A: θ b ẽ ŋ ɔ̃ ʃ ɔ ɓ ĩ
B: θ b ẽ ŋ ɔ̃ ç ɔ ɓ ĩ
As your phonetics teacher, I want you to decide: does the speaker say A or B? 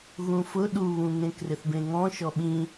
A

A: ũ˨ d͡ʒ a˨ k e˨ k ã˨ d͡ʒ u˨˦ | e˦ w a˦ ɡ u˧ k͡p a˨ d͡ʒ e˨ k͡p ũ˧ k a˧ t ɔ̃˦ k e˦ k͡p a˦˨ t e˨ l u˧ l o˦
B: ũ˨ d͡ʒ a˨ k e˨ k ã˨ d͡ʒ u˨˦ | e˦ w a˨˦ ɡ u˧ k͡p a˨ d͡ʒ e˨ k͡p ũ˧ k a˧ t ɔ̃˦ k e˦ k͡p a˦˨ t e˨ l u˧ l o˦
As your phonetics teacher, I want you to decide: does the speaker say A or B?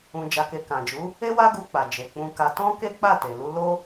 A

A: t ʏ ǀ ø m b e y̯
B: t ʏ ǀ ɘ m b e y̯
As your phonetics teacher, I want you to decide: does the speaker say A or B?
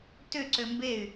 A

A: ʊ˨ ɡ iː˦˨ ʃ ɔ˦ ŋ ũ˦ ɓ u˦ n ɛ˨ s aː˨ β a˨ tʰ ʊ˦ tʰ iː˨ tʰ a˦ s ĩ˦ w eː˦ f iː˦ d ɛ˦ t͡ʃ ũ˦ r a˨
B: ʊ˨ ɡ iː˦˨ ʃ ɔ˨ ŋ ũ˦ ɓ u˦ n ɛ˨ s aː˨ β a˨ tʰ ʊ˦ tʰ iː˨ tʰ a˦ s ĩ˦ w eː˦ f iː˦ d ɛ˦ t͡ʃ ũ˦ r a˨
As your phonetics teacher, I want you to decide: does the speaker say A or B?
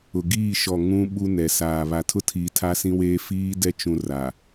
B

